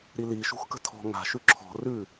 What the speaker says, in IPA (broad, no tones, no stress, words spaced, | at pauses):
ɾili ʃṳxkə̤tʰɔ̤ ŋa̤ʃʉ ǁʰɔ̤ rʉ